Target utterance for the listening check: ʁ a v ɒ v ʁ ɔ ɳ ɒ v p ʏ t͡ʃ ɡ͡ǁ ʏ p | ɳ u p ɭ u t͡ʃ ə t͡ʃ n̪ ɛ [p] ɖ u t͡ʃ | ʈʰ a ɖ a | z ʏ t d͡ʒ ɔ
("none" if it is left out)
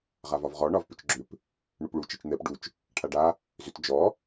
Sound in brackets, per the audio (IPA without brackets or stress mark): p